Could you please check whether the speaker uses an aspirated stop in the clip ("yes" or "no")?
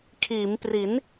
yes